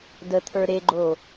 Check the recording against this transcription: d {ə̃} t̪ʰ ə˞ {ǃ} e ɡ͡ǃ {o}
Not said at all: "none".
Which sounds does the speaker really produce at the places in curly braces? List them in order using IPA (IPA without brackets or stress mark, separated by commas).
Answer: ə, ɾ, o